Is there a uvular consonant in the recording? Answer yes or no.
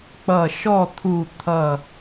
no